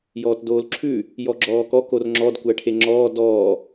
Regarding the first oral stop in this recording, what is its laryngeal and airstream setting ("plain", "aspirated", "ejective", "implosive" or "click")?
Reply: plain